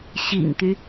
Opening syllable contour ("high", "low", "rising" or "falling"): low